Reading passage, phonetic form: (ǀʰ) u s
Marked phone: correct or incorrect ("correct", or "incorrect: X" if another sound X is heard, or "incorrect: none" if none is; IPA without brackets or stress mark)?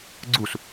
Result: incorrect: ɡ͡ǀ